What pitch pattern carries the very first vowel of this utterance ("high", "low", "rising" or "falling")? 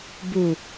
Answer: low